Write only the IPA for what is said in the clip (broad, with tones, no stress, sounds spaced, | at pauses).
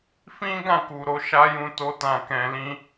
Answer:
f ĩ˦ ɡ ã˦˨ k u˨ ɾ o˨˦ ʃ a˦ j ũ˧ t o˧ t ã˨ k ɛ̃˨ l ĩ˧